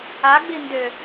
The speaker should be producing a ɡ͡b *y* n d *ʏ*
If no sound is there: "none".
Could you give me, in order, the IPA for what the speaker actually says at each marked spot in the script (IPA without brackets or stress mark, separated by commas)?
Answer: i, ʏ